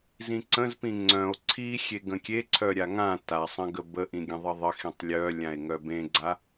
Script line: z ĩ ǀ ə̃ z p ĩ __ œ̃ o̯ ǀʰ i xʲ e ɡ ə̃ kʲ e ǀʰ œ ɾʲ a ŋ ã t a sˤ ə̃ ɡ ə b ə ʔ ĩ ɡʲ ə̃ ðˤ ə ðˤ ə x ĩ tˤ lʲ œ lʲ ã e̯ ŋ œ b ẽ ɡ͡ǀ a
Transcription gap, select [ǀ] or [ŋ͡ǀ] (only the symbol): ŋ͡ǀ